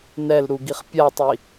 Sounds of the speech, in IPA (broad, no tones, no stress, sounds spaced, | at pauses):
n ɛ l ɾ u ɡ i χ pʲ a tˤ i